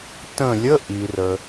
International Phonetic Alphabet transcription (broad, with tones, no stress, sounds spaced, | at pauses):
t ə̃˧˩ lʲ ə˧˥˧ ʔ i˩ r ə˩